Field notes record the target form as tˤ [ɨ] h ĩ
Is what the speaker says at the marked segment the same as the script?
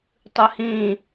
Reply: yes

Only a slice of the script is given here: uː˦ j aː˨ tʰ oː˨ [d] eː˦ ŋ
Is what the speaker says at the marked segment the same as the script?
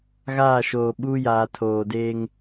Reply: yes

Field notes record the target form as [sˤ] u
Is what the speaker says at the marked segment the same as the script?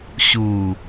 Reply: no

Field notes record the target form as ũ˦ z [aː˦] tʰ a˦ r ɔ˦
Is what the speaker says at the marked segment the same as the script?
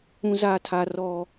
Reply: yes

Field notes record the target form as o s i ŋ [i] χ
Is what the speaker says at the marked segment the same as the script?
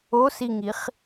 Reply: yes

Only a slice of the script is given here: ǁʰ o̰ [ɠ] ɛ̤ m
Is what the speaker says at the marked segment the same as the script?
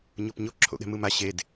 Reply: yes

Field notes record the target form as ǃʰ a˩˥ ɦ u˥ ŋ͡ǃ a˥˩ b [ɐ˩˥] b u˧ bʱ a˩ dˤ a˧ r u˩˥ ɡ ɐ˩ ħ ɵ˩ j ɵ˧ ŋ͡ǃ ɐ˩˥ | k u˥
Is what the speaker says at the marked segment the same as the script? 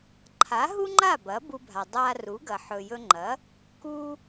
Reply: yes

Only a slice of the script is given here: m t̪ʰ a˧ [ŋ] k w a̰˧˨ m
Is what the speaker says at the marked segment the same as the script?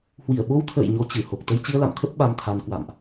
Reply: no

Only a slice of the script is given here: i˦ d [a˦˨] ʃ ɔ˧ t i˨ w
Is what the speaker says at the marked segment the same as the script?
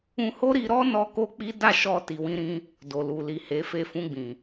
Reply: yes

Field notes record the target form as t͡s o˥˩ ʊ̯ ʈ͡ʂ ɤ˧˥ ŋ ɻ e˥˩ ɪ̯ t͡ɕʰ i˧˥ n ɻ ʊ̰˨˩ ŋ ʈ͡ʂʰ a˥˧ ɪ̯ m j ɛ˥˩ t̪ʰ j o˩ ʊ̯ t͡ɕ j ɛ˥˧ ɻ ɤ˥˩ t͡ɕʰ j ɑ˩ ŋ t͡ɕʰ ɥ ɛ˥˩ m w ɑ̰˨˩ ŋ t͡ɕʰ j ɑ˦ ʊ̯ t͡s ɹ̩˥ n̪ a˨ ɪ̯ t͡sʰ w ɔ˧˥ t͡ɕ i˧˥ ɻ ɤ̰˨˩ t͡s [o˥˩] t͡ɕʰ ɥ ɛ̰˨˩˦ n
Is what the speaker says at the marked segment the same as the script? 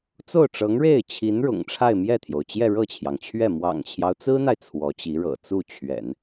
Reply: no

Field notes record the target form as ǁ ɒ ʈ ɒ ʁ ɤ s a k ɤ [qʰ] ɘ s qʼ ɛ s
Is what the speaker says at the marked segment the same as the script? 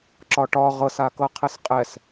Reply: yes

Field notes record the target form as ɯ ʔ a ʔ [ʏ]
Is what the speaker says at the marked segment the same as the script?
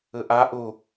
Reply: no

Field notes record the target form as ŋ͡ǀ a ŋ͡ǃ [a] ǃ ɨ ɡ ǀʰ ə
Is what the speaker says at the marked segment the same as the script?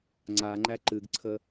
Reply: no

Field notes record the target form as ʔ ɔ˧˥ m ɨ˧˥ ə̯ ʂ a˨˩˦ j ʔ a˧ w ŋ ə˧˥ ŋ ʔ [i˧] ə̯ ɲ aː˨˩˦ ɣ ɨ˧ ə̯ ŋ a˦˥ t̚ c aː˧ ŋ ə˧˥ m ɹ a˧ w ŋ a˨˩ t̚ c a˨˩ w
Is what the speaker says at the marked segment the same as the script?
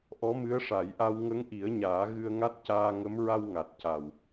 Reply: no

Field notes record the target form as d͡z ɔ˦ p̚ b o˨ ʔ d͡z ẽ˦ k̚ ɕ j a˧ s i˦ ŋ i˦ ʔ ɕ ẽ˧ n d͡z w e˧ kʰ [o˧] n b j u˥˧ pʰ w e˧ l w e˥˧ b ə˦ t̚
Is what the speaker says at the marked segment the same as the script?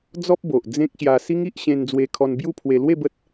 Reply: no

